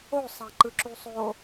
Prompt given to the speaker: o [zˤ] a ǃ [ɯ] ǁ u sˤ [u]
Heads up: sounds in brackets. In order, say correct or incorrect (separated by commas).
incorrect, correct, incorrect